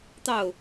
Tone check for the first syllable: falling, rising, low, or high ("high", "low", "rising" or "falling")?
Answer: falling